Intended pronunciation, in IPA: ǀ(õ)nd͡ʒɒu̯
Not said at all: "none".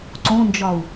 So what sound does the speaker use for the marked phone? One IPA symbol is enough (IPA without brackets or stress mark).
õ